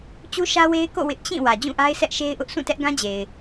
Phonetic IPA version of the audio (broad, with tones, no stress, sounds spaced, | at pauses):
t͡ɕ u˦ ʃ ä˦ w e˦ ɪ̯ k o̰˦˨ w ɪ˦ ʔ t͡ɕ ĩ˦˨ w ä˨ d͡ʑ ũ˦˨ ʔ a˦ ɪ̯ s ɛ˦ ʔ ʃ e˦ ɪ̯ ʔ ʊ˦ ʔ s ũ˦˨ t ɛ˦ ʔ ɡ ã˦ d͡ʑ e˨ ɪ̯